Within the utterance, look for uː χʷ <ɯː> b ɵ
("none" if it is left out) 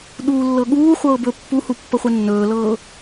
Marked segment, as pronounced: ɤː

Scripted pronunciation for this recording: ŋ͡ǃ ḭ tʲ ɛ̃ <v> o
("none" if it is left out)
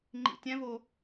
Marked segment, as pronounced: v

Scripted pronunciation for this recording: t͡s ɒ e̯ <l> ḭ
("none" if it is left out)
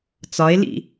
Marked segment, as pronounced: l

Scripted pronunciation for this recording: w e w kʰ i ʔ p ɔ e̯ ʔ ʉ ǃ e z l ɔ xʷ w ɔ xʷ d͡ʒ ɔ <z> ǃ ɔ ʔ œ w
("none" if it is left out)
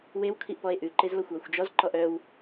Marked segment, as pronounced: z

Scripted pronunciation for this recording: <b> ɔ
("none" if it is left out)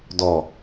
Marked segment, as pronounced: d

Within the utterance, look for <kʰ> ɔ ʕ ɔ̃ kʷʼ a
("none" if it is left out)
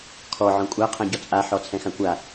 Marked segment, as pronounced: kʰ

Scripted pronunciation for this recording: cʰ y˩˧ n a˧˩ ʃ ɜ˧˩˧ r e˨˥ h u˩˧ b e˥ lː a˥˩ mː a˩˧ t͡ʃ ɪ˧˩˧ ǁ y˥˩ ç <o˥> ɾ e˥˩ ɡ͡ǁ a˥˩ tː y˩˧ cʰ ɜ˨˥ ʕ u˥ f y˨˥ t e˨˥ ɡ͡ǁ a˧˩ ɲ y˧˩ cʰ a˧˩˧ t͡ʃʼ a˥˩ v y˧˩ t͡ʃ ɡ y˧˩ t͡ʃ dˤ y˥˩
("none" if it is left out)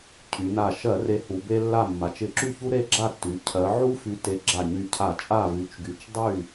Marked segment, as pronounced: u˥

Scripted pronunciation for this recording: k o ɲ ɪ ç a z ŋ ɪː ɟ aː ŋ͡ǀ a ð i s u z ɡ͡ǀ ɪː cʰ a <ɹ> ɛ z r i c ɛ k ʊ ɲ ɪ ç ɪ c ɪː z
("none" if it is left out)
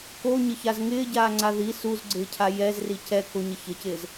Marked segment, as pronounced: j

